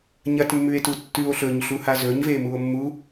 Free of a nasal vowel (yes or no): yes